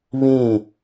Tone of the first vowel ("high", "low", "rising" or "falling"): falling